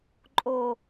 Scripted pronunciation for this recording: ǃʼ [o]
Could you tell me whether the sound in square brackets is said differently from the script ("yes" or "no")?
no